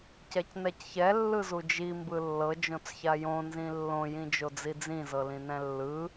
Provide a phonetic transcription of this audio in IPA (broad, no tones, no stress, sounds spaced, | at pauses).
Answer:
c ɛ c n ɛ c ç ɛ lː ɯ z u d͡ʒ i m b ɯ lː ɤ d͡ʒ õ t͡s ç a j õ n z ĩ lː õ j ĩ d͡ʒ o d͡z i d͡z ĩ z ɤ l ĩ n ɛ̃ lː ɯ